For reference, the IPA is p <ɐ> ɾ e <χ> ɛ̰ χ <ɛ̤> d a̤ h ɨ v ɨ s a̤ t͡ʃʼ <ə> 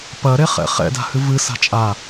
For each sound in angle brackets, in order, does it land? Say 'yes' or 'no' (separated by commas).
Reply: yes, yes, no, no